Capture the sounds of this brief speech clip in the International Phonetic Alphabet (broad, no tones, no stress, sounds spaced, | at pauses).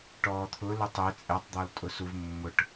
ʈ ɔː t̪ʰ ʊ l ʊ tˤ e t͡sʼ ɛ tˤ d̪ ɔ l tʼ ʊ s u v mː ʊ ʈ